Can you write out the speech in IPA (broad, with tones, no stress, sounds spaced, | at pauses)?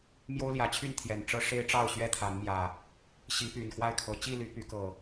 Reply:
m j o˦ ʊ̯ l j ä˨˦ t͡ɕʰ y˥˨ n t̪ʰ j ɛ˨˩ n ʈ͡ʂ ɤ˦ ʂ e˦ ɪ̯ ʈ͡ʂ ɑ˥˨ ʊ̯ ɕ ɥ ɛ˦ t̪ʰ a˨˦ n m j ä˨˩ | ɕ i˨˦ p y˨˩ n x w a˥˨ ɪ̯ kʰ ɤ˨˦ t͡ɕ i˥˨ l y˨˦ p y˨˦ k ɤ˨˩